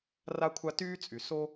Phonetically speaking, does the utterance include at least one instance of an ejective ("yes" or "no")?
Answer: yes